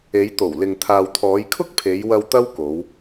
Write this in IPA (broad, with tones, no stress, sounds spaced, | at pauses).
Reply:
e˨˧ j t̪ o˨˩ w l ɪ˨ ŋ t̪ʰ aː˨ w t̪ʰ ɔː˨˧ j kʰ ʊ˥ k̚ pʰ e˨˧ j w ɐ˧ w t̪ ɐ˥ w k o˨˧ w